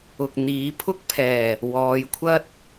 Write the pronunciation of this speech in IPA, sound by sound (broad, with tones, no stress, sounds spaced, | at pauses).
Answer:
ʊ˨ k̚ n̪ iː˨˧ pʰ ʊ˥ k̚ pʰ ɛː˨˩ | w ɔː˨˧ j kʷʰ ɐ˥ t̚